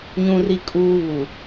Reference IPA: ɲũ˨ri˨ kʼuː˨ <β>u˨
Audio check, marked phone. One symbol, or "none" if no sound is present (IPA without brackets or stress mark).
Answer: β